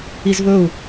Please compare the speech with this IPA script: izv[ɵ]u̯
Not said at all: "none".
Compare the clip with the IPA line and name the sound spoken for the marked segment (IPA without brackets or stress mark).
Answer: ɵ